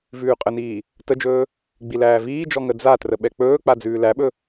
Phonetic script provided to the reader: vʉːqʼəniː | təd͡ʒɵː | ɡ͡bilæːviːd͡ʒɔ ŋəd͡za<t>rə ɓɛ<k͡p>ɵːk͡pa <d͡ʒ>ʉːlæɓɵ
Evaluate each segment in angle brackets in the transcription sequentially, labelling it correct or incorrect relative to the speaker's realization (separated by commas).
correct, correct, incorrect